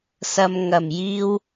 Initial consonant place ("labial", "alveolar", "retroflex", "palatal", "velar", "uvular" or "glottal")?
alveolar